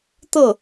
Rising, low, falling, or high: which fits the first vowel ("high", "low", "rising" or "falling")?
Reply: falling